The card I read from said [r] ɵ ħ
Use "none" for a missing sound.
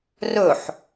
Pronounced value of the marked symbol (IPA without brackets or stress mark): r